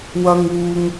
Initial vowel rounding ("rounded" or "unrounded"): unrounded